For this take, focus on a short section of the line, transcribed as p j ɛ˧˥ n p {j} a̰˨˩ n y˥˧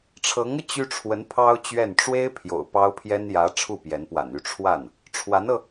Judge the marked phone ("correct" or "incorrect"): incorrect